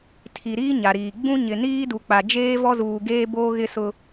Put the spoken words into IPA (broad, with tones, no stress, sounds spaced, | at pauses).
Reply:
tʰ i˨ ɾ iː˦ ɲ a˨ ɾ iː˨ ɡ͡b ũ˦ ɲ ɪ˨ n iː˦ d u˨ k͡p a˨ d͡ʒ eː˦ v ɔ˦ z uː˨ ɡ eː˦ b oː˦ ɣ ɪ˦ s ʊ˦